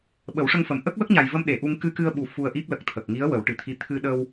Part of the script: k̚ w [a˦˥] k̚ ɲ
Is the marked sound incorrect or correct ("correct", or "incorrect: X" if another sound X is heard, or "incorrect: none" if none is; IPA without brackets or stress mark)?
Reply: incorrect: ə˦˥